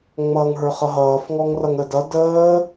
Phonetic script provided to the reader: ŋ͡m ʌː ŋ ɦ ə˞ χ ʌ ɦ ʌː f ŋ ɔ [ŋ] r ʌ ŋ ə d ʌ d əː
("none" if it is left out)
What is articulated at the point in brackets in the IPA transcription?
ŋ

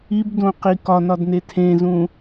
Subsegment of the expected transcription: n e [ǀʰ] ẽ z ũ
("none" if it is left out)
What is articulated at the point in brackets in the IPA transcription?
tʰ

